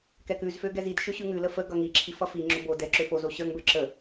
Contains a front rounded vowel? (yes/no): yes